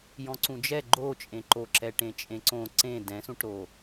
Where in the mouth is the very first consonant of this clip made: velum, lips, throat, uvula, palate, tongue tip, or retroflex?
palate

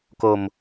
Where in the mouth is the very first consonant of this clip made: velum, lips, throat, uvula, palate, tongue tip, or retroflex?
velum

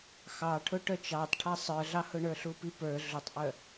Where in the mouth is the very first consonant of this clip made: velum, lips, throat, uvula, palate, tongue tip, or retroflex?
velum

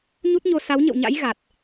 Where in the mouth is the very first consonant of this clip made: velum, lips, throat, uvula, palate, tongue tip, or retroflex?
palate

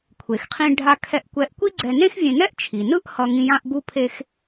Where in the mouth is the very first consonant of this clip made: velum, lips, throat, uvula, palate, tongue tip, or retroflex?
velum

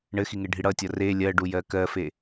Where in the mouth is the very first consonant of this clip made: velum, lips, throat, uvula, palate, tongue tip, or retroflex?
retroflex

